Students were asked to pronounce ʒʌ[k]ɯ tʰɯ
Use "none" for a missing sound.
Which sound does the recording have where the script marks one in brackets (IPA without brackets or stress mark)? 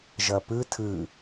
p